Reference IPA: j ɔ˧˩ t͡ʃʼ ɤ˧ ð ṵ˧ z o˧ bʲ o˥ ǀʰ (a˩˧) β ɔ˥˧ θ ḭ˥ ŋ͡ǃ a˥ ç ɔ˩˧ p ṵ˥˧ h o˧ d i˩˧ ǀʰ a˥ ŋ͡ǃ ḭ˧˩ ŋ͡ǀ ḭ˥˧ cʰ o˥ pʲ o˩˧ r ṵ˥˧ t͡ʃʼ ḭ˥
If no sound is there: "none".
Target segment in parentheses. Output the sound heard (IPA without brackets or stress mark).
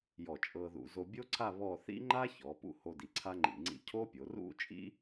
a˥˧